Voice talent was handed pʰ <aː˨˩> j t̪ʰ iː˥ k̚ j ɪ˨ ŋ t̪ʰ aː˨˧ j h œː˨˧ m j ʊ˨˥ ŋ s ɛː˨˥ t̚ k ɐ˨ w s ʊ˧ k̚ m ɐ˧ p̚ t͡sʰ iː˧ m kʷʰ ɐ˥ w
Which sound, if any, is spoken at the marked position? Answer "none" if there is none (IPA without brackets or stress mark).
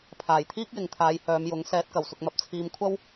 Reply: aː˨˩